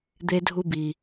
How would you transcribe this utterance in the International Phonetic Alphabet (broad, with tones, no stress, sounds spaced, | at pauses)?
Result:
d̪ e˦ dʱ u˦ b i˨